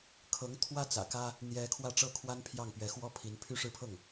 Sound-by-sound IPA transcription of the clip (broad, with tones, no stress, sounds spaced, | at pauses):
kʰ ɤ˧˥ ŋ t̪ʰ w ä˥ t͡s ä̰˨˩ k ä˥ | n̪ j ɛ˥ kʰ w ä˥˩ ʈ͡ʂ ɤ˥ kʰ w a˥ n pʰ j ɑ˥˩ ŋ p ɥ ɛ˧˥ x w ɔ˥ pʰ i˧˥ n pʰ y˥˧ ʂ ɻ̩˥˧ pʰ ɤ˥˩ ŋ